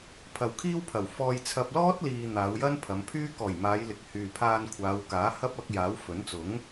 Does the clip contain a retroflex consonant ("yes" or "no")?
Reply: no